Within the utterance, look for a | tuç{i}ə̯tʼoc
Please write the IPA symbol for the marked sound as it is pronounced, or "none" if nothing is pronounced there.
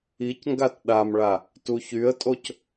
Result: y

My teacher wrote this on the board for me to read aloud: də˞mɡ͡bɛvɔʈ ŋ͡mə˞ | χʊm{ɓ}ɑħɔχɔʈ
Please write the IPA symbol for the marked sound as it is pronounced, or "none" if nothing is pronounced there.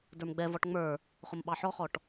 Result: ɓ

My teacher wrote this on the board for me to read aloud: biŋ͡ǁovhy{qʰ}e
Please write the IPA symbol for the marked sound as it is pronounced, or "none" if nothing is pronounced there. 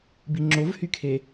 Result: kʰ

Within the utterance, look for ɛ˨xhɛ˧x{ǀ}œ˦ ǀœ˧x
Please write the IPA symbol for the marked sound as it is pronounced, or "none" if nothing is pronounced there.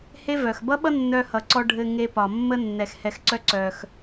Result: ǀ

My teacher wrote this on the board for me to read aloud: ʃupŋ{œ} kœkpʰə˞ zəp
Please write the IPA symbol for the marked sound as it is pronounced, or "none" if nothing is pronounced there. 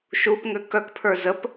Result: ø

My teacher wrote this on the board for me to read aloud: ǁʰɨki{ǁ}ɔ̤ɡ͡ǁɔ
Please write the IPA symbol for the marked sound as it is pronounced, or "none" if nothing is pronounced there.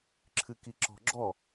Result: ǁ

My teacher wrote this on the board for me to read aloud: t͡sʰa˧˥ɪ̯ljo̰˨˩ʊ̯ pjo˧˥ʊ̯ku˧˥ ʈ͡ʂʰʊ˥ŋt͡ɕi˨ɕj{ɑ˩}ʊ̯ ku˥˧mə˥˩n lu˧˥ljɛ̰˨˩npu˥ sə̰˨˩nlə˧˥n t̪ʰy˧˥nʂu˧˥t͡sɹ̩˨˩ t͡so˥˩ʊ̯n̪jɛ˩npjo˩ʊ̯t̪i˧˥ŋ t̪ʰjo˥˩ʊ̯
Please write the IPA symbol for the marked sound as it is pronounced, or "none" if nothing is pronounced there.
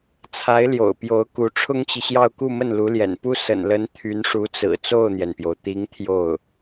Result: ɑ˥˧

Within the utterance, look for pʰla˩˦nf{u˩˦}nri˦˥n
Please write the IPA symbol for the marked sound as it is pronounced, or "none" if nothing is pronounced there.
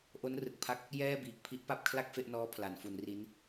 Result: u˩˦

